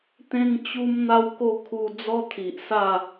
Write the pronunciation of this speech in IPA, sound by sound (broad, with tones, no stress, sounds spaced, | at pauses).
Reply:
t̪ ẽ˦ ŋ t͡ɕ u˦ m n̪ a˦ w k o˥˧ kʰ u˧ d͡z ɔ˦ t̪ʰ i˨ ʔ s a˥˧